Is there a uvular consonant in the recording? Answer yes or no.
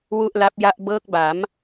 no